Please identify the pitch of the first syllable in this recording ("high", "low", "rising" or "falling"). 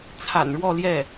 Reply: low